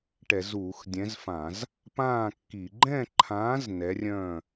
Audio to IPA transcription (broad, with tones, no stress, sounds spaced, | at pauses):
ʈ ɛ˧˩˧ z uː˧˩˧ x dʲ ɛ̃˨˥ z f ã˧˩˧ z | p ãː˥˨ kː i˧˩˧ ɡ͡ǃ ɛ̃˥˨ ǃʰ ãː˨˥ z n ɛ˨˥ rʲ œ̃˥˨